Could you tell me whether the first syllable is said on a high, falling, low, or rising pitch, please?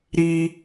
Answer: high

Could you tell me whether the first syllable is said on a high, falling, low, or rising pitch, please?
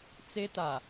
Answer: high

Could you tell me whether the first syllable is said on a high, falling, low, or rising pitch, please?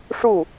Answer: falling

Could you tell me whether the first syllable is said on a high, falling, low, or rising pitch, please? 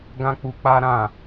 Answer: high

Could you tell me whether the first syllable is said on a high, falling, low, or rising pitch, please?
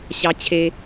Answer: high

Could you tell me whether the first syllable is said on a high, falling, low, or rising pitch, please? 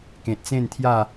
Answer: low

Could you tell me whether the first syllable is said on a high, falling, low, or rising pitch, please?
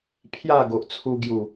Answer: falling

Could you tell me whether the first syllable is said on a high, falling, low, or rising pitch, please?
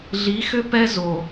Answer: rising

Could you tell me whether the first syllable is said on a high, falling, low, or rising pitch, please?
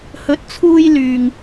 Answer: rising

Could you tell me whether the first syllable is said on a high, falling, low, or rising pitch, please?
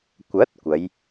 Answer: rising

